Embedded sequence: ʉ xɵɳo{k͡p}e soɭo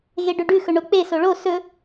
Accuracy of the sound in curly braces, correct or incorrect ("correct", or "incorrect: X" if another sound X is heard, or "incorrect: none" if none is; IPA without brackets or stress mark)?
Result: correct